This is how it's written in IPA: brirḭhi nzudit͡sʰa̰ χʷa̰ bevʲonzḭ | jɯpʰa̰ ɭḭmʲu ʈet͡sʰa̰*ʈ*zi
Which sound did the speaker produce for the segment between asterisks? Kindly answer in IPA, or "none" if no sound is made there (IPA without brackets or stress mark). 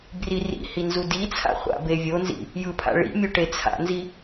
n